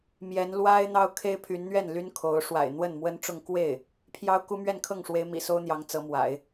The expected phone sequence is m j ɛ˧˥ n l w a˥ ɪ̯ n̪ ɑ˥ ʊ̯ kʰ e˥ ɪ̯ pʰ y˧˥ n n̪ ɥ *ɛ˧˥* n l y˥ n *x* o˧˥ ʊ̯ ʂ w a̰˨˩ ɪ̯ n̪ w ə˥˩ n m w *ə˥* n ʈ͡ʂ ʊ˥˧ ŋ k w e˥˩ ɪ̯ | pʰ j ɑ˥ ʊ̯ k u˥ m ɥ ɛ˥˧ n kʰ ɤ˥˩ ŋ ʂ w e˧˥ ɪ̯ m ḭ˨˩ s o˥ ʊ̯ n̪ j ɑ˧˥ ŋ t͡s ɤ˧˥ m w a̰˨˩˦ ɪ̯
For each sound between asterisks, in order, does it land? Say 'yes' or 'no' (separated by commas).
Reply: no, no, yes